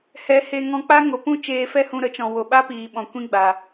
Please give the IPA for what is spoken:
hɛ˨˦he˧ ŋɔ̃˧k͡pa˦ŋo˨pũ˦ t͡ʃeː˧fɛ˦hũ˧ ɾə˨˦t͡ʃɔ̃˨ wo˨ɓa˦piː˨ɓɔ̃˨ kʷĩ˦ɡ͡ba˨

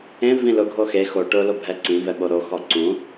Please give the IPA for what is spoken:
ẽ vĩlʊɡʱo xe xo ʈʊlo bʱɛǀĩvɛ ɓoɾoxɔ ǀũ

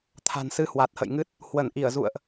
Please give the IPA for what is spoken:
t̪ʰa̤˨˩n sɨ˧hwa˨˩t̚hə̰˧˨jŋɨ˦˥t̚ | hwə˧˩nʔi˧˩ə̯zṵ˧˨ə̯ʔ

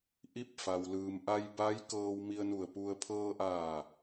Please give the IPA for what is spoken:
ʔi˧˥p̚fa˩wlɯː˩m ʔa˧jba˧˥j kɤː˧wmi˧ə̯nu˧˩ə̯pu˧ə̯ pʰɤː˧ʔaː˧˩

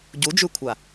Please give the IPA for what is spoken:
ɟu d͡ʒʉkʷʰa

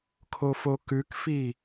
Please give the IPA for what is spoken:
kʰofokʉkfi

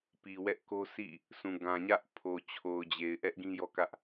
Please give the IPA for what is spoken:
pi˨wɛ˦ʔko˦ sʰḭ˦˨ | sʰũ˨ ɡã˨ɲä˦ʔpʰo˨ t͡ɕʰo˨ʊ̯d͡ʑe˨ɪ̯ʔɛ˦ʔ ɡĩ˦jɔ˦kä˦ʔ

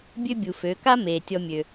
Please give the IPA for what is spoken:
bʲø˥bʲu˩ fø˩˧ka˥ meː˩tʲɔ˧mʲø˩

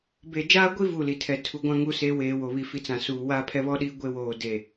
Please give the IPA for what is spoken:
be˨d͡ʒaː˦ɡʷi˦ vu˦˨li˨ tʰɛ˨ tʰu˨ɡʷã˦ ŋu˦se˦weː˨ wo˨βi˨fi˨t͡sã˨ suː˨wa˦ pʰɛ˦βɔ˦ɗiː˦ ɡʷe˦woː˨ de˨

